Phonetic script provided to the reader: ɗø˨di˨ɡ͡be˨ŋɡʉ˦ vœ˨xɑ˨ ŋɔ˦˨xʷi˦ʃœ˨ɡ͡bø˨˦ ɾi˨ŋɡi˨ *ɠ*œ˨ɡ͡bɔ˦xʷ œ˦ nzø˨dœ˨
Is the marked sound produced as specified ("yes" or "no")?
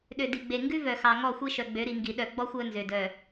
no